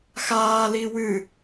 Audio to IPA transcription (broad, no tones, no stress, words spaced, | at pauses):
xaː liwɨ